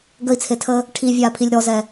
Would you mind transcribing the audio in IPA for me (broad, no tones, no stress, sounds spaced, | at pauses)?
ɡ ə i̯ t͡sʰ e tʰ əː | ʈʰ i vʲ aː pʰ i lʲ ɾ ɔ z ɛ